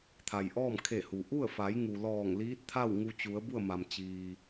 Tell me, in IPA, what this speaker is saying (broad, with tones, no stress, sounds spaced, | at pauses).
t̪ʰ a˩ j ʔ ɔː˥˨ m kʰ e˧˩ h u˩ ʔ u˥˨ ə̯ f a˩˧ j ŋ u˩ l ɔː˧˩ ŋ l iː˧˥ t̚ t̪ʰ a˥˨ w ŋ u˧ t͡ɕ u˩˧ ə̯ b u˥˨ ə̯ m a˩ m t͡ɕ iː˩